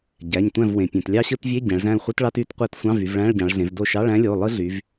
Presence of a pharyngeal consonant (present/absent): absent